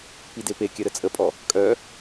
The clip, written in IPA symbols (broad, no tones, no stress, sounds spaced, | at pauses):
p i d e p e kʲ ɐ ɾ ə t͡sʼ ə pʼ ɔ | kʼ œ